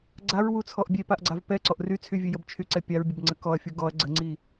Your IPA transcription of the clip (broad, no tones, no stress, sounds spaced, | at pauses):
ɡ͡ǀ a ɹ w u t͡sʰ ɔ ʔ bʲ e p a ʔ ɡ͡ǀ a v p ɛ ǀ ɔ ʔ r y t͡sʰ y vʲ ø j ə b t͡ʃʰ y ǀ ɛ pʲ a ɹ bʲ ə b ŋ͡ǀ ə k ɔ ɐ̯ fʲ u ɡ ɔ ɐ̯ ɡ͡ǀ ə ŋ͡ǀ i